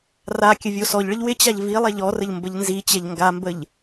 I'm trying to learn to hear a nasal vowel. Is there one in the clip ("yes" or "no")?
no